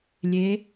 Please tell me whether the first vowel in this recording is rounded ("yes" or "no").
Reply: no